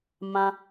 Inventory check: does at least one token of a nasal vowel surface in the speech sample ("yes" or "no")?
yes